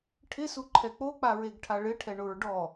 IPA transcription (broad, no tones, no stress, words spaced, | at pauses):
ʈʰɪsuǃʰɛ k͡pok͡paɹeɡʈʰa ɭɪʈʰɛɳʊɹ ɖɔ